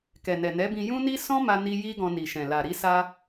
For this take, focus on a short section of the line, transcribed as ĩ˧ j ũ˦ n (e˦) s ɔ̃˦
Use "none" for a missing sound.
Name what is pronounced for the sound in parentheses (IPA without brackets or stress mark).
i˦